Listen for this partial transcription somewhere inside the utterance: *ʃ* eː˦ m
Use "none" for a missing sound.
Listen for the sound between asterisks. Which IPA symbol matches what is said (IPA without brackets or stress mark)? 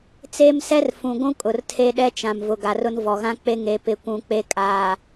t͡s